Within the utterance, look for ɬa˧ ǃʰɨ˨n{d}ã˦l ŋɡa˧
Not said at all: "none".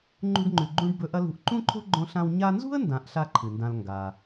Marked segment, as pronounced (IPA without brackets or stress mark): d